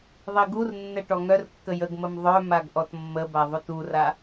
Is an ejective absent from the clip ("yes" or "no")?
yes